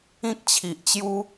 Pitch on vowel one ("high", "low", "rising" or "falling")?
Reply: high